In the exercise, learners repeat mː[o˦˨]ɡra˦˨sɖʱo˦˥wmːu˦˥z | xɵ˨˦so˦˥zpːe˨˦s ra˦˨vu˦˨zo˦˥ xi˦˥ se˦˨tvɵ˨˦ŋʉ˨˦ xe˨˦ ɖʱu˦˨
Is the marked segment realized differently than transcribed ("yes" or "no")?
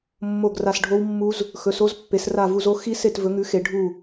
no